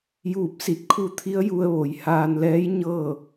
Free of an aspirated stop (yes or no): no